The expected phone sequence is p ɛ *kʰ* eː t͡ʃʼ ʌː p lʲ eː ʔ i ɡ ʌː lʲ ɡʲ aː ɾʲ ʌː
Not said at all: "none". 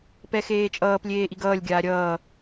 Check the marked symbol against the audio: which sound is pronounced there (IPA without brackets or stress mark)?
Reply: x